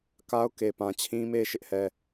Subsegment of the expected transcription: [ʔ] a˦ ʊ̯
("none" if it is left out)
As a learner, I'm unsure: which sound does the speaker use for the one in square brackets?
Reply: k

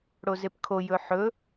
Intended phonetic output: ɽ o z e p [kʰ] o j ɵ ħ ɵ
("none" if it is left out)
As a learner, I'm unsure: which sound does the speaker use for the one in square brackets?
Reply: kʰ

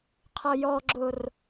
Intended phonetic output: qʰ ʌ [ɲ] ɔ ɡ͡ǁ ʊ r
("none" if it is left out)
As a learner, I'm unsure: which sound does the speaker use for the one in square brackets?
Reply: j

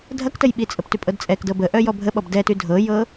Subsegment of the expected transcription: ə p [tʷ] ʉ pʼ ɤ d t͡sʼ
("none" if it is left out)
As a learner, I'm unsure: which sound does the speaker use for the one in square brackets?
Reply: t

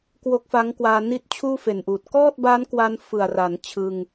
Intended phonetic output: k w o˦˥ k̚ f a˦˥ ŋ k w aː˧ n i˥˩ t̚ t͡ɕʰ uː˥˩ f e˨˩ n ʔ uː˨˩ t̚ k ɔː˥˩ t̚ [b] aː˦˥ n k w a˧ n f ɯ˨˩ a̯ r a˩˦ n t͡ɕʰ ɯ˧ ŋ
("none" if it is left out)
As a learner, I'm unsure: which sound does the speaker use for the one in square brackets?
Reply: b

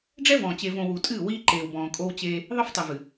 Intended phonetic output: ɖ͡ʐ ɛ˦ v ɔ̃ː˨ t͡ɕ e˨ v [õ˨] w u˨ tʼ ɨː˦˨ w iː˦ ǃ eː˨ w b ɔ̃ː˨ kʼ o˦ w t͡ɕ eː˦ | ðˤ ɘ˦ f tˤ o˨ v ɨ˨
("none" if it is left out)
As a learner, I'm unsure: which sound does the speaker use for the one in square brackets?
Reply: õ˨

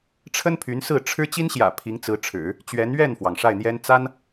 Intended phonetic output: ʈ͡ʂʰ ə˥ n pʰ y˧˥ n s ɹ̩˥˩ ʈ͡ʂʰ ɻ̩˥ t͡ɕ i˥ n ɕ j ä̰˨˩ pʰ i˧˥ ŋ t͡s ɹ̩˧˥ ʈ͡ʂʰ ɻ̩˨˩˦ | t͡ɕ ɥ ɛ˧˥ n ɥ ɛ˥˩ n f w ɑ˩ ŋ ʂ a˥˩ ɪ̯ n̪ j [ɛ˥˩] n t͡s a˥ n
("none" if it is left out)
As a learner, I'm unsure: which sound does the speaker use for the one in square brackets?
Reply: ɛ˥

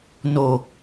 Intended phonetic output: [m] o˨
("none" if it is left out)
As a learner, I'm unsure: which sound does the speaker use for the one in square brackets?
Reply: n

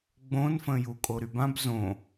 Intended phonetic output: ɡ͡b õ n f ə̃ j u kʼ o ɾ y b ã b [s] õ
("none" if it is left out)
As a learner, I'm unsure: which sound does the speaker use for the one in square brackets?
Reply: z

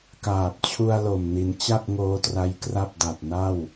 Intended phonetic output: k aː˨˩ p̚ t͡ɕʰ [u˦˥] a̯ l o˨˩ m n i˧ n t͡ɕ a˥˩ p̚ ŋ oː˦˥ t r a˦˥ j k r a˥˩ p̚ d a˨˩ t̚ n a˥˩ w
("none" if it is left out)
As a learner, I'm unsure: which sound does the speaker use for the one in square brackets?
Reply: u˧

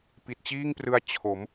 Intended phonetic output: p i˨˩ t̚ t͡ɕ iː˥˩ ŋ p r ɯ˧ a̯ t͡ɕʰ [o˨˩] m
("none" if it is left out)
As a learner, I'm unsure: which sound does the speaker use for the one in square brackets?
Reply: o˩˦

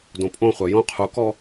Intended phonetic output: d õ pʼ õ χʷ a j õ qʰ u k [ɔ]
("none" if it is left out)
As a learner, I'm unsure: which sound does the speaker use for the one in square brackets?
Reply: ɔ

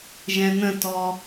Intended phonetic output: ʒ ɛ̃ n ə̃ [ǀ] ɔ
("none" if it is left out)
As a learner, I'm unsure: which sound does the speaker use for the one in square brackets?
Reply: t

